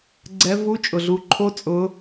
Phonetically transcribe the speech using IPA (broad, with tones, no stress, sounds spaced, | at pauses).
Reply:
ɡ͡ǀ ɛ˧˥ v u˧˥ t͡ʃʼ ʊ˩ ɮ u˩˧ ǃʰ o˧˥ t͡sʼ ʊ˩˧